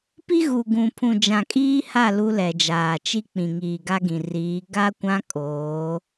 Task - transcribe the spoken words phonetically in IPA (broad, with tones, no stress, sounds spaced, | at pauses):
p i˦ ɣ u˨ ɡ ũ˨ pʰ ũ˨ d͡ʒ ã˨ kʼ iː˦ h a˦˨ l u˦ l ɛ˨ d͡ʒ aː˨ t͡ʃ i˦ k͡p ĩ˨ ŋ iː˨ ɡ a˦ ɡ ĩ˨ r iː˨˦ ɡ a˦ kʷ ã˦ kʼ oː˨˦